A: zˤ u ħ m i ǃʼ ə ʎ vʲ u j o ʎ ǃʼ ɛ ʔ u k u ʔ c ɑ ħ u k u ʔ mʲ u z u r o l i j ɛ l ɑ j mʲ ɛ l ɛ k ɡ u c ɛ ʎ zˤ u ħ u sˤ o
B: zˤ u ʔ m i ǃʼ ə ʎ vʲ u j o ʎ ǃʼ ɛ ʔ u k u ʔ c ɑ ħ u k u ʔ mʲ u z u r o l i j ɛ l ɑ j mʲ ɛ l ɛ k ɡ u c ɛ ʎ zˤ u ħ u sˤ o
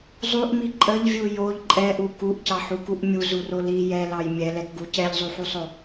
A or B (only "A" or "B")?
B